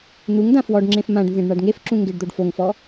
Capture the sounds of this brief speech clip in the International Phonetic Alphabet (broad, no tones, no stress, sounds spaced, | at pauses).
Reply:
n̪ u ŋ d ã f w ɔ ɖ ŋ͡ǁ ẽ f m ã ɖ n z ẽ ɖ ɳ a ɖ ŋ e f ǁ ũ ŋ ɡ e ɖ d̪ o ɖ f o ŋ f ɔ